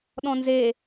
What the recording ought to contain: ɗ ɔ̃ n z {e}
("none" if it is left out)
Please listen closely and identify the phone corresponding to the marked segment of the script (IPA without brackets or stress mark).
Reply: e